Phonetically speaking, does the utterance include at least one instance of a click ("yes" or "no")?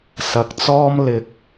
no